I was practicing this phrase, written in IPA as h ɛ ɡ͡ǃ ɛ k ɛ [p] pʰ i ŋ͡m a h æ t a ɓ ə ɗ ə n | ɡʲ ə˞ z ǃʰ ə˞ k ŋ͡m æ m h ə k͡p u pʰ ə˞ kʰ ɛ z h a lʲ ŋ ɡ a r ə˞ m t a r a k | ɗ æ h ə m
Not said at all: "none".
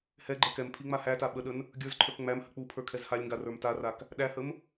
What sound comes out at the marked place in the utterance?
m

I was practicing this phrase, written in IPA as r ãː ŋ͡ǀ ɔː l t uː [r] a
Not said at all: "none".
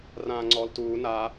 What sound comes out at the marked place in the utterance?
n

